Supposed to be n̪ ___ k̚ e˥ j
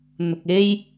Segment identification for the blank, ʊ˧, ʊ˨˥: ʊ˧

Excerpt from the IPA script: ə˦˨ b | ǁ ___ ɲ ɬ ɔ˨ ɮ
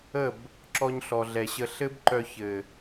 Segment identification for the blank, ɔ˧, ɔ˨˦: ɔ˧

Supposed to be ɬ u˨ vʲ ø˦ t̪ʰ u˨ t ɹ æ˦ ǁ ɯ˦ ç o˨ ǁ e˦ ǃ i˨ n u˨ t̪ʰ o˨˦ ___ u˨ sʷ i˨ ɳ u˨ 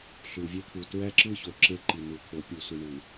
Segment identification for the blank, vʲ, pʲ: pʲ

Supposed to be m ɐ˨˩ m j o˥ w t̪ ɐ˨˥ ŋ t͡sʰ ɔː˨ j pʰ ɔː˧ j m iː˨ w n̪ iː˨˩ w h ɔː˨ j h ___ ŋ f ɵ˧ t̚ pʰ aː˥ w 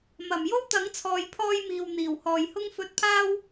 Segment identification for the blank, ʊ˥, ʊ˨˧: ʊ˥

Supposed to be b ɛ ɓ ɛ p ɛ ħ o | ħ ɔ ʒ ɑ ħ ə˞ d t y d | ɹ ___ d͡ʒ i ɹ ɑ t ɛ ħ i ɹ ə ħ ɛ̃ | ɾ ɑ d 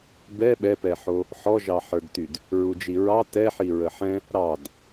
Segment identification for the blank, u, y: u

